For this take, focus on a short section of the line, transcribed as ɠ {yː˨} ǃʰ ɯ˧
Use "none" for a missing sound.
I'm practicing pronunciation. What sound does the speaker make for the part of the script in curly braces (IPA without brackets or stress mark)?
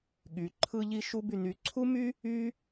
y˨